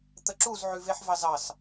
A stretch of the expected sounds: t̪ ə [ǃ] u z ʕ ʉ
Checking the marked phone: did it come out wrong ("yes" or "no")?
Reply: yes